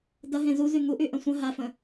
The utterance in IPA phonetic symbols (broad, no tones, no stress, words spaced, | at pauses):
dɐɦẽ zuzy ŋuʔyʔɐ̃ sʷə̃ ɦafə̃